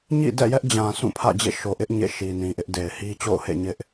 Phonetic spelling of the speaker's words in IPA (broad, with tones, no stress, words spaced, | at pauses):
ɲḭ˦˨dɛ̰˦˨jɛ˦ʔd͡ʑã˨ sʰũ˦˨pʰä̰˦˨d͡ʑḛ˦˨ ʃo˨ʔɪ˦ʔ ɲḛ˦˨ ʃi˨nĩ˨ʔɪ˦ʔde˨ɪ̯ hi˦t͡ɕo̰˦˨ʊ̯hḛ˦˨ ɲɪ˦ʔ